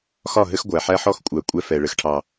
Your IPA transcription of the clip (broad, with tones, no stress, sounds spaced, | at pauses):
x ɒ˦˨ ɦ ɘ˦ x ɡʷ æ˨ ħ æ˦ ħ ɔ˦ x kʷʼ æ˨ kʷʼ ɛ˦ f ɛ˨ ɭ ɘ˨ x ʈʰ ɑ˨